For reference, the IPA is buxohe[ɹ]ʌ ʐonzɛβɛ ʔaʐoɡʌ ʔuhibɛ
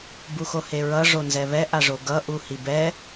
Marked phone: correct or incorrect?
correct